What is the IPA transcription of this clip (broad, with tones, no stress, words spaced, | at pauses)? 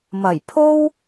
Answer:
mɐ˨˩jpʰo˥w